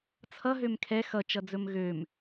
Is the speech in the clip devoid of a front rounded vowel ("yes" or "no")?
no